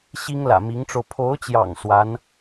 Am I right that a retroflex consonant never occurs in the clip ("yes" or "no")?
no